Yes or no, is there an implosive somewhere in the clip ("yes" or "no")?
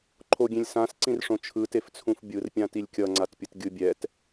no